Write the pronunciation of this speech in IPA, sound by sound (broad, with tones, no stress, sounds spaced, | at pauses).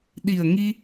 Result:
ɗ i˨˩ ə̯ ŋ i˧